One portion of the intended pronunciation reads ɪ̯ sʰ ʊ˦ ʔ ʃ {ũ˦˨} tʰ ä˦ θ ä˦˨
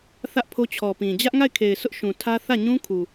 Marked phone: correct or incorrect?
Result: incorrect